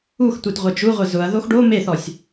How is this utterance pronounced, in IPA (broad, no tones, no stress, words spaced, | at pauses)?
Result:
ux tʷetʁʷɛd͡ʒuʁʷɪ zʊɐ̯ðox ɖo meθɔsʲ